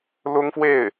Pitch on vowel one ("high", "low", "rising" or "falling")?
high